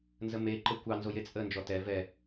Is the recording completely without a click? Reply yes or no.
no